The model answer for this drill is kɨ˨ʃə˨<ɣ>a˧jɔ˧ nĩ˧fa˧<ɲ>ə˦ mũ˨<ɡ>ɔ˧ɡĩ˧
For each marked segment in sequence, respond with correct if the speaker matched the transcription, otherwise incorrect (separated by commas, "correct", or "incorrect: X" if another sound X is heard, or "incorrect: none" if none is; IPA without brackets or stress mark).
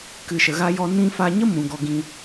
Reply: correct, correct, correct